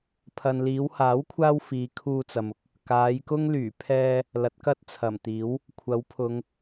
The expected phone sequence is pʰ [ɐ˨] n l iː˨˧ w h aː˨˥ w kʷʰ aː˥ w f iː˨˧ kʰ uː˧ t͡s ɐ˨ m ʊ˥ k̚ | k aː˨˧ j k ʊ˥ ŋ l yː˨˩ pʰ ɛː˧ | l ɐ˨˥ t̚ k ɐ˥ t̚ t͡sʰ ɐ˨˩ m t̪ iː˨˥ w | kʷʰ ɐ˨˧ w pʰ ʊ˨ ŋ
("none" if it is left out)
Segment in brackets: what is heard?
ɐ˨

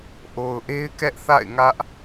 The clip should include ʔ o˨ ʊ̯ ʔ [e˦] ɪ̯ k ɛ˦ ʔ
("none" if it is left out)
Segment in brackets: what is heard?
e˦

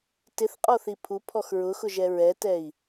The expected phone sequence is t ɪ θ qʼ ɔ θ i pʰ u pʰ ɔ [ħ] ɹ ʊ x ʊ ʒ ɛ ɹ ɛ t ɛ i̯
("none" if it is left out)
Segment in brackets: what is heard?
x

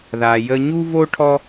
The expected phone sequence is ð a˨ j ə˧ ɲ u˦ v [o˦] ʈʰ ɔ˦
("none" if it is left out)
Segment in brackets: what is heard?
o˦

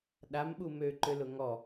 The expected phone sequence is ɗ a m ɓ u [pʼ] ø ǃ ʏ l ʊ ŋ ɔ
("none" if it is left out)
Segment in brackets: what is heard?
m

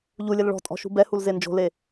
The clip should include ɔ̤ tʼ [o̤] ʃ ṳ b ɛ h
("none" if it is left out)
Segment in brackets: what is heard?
ɔ̤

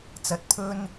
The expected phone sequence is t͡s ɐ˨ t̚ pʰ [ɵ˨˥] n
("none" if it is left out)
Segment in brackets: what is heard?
ɵ˥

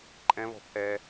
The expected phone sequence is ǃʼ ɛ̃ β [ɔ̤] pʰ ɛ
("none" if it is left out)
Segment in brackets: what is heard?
ɔ̤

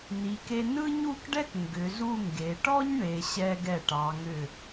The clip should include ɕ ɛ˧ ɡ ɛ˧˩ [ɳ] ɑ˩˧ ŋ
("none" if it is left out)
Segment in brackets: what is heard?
ʈ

